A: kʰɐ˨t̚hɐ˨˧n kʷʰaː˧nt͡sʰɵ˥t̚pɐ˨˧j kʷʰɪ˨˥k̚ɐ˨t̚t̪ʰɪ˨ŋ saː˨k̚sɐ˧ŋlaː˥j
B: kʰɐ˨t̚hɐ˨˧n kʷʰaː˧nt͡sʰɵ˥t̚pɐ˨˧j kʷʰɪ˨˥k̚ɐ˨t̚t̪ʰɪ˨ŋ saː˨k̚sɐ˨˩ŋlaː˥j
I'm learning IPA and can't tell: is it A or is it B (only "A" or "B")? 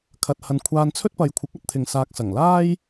B